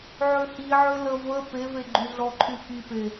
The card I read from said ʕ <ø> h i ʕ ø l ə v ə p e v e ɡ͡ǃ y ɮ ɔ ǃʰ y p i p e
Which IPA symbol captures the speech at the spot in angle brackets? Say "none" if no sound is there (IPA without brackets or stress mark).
ø